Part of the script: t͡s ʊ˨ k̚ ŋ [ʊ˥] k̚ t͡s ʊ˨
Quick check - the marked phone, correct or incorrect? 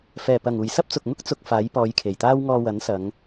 correct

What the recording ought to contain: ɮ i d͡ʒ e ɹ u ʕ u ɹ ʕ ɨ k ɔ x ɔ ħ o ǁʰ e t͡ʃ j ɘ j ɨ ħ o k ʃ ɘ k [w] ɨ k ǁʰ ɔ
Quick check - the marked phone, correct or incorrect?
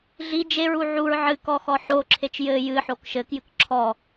incorrect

